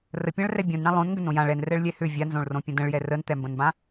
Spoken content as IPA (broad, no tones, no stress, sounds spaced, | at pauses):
r ə pʲ ã ɭ r ɛ bʲ õ n ɳ ã lˠ õ n ŋ ɡ ʏ n õ j ã ɭ ɛ n r ɛ ɭ lʲ ɛ h ʏ vʲ a n z õ ɭ r õ pʲ ə̃ d ə̃ ɭ j ɛ r ə n t̪ ɛ m b ə̃ n b ã